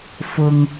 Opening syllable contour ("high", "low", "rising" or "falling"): low